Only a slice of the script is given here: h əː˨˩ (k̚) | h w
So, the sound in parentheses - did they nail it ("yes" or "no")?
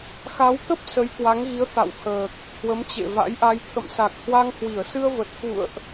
yes